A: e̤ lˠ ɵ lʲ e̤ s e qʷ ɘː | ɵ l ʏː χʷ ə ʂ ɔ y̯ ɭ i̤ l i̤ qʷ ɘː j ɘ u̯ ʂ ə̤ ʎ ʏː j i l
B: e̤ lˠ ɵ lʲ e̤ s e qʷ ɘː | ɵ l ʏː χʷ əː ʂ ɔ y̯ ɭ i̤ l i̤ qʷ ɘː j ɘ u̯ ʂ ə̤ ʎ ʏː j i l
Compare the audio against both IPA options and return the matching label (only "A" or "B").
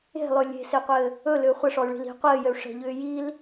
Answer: A